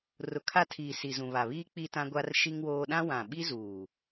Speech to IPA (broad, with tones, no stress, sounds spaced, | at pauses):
r ʊ˨ kʰ a˦˨ tʰ iː˨ s i˨ z ũ˨ β a˨ β iː˦ k͡p i˦ t ã˦ ɡʷ a˦ r ʃ i˦ ŋ w oː˦ ɗ ã˦ w ã˨ ɓ i˦ z uː˨